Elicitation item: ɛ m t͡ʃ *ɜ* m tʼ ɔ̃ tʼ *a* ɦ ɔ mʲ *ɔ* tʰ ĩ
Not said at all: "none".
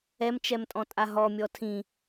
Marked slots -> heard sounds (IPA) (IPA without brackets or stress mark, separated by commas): ɛ, a, ɔ